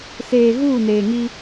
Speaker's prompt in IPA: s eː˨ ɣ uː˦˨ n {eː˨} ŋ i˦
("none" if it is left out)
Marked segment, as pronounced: eː˨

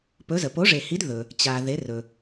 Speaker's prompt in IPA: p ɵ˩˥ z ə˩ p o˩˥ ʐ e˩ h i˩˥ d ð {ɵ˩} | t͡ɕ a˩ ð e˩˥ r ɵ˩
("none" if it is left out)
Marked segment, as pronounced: ɵ˩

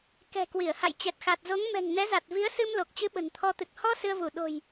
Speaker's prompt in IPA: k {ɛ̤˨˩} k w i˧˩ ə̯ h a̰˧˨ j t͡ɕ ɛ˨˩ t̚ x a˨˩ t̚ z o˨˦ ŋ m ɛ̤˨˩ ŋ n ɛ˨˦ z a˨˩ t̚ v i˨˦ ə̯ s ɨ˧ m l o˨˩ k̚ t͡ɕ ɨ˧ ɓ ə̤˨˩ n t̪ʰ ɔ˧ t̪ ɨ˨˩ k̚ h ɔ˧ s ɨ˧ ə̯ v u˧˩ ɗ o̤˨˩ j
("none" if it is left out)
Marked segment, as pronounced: ɛ̤˨˩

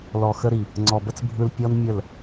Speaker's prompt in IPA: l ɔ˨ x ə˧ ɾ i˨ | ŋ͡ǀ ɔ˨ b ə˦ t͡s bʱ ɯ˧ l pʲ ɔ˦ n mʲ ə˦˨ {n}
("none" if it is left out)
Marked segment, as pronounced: l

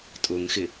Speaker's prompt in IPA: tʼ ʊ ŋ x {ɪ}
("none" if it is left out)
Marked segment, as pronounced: ɪ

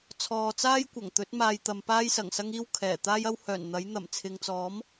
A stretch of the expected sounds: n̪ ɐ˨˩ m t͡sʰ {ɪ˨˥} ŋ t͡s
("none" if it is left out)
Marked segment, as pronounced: ɪ˨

